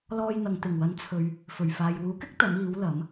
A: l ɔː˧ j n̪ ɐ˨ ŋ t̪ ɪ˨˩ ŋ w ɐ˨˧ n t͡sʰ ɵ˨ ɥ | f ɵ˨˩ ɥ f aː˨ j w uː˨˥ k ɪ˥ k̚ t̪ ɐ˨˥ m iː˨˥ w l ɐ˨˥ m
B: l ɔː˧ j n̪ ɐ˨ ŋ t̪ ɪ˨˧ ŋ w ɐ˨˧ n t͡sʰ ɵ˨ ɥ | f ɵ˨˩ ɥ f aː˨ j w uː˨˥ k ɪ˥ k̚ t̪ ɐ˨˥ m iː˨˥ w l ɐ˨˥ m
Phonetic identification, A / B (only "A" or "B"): A